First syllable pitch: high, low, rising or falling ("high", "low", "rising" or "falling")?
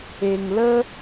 low